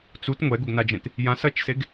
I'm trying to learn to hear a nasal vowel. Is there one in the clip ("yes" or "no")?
yes